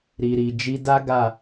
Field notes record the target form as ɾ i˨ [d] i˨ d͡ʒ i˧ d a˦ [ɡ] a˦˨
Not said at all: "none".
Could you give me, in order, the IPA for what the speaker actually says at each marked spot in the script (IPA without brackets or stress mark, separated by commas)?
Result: ɾ, ɡ